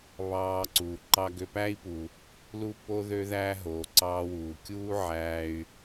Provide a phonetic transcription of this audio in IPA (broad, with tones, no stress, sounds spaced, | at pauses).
β ɑː˧ ǀ uː˩ ǃ ɑ˧ ɡ ø˧ p æ˥ i̯ p u˩ | l u˥ p o˥ ð ø˥ ð æ˥ ɦ oː˩ ǀ ɑː˧ w uː˩ kʲ uː˥ ʕ æː˧ y̯